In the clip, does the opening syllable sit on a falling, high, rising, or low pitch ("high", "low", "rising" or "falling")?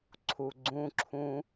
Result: low